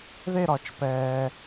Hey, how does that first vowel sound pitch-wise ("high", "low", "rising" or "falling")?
falling